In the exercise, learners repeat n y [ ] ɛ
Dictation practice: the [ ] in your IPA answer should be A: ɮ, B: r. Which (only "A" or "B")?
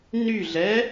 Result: A